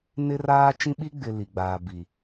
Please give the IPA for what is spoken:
n ɪ˦ r aː˦ t͡ʃ ĩ˦ ɓ i˦ ɡ͡b ɪ˨ l i˨ ɡ͡b aː˨ b i˨

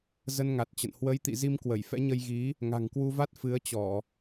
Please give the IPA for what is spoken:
z ə˧ n ŋ a˨˩ t̚ t͡ɕ ə̰˧˨ n h w ə˨˦ j t̪ ḭ˧˨ z i˧ m k w ə˧˩ j f ɛ̰˧˥ ɲ ə˧ j ɣ i˨˦ | ŋ a̤˨˩ ŋ k w u˧ v a˦˥ t̚ f ɨ˨˦ ə̯ t͡ɕ ɔ˧˩˨

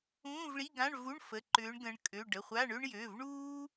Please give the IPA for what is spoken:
ũː˧˥˧ v ɭ i˧˥˧ ɡ ã˧˥˧ ɳ v u˧˥˧ ɳ f ə˩˧˩ ǃ ʏː˨˦ ɳ ɡ ə̃˨˦ ɳ kʼ ø˩˧˩ ɖ ə˩˧˩ χʷ a˧˥˧ ɳ ø˥ ɳ j ø˩˧˩ v ɳ uː˥

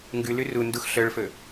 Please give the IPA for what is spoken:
ŋ ɡ ʉ l ʉ r u n d u x ɬ œ ɭ f ɵ

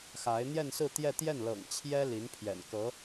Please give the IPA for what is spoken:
x a˧˥ ɪ̯ n̪ j ɛ˥˧ n s ɹ̩˥˧ t̪ j ɛ˥˧ t̪ j ɛ˥˩ n l ɤ̰˨˩ ŋ t͡ɕʰ j ɛ˥ l i˧˥ n pʰ j ɛ̰˨˩ n k ɤ˧˥

